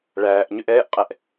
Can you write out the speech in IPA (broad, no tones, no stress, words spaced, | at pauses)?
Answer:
ɭæːʔ ɲʏʔɛːʔqʼɛʔ